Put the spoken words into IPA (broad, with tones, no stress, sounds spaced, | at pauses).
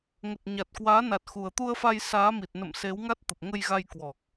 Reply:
ŋ ə˨˩ t̚ ɲ a˨˩ t̚ k w aː˨˦ n a˨˩ t̚ x u˨˩ ə̯ t̪ u˧ ə̯ f a˧ j s aː˨˦ m i˨˩ t̚ n ə̰˧˨ m s e˨˦ w ŋ a˦˥ t̚ t̪ ə˨˩ p̚ ŋ ə˧ j ɣ a˧ j k w ɔ˨˩ k̚